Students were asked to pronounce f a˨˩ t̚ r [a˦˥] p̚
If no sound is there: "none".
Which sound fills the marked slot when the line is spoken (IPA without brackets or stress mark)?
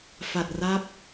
a˦˥